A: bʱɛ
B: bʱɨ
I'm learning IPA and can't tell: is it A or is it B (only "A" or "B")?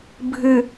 B